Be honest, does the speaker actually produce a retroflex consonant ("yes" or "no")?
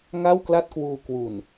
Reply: no